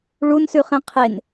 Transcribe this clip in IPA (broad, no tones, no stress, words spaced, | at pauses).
ɭunsʉχẽ qʰen